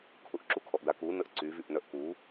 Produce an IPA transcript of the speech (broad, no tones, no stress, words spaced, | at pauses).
kʰʊʔǁukʰɔʔda kunəʔ ǀyvyʔnœʔ ku